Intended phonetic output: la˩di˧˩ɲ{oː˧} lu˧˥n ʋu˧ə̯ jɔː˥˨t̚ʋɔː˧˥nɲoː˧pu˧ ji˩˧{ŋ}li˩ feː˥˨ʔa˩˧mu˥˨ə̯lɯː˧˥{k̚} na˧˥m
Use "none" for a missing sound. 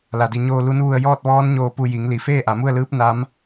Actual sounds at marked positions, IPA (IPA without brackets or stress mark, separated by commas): oː˧, ŋ, p̚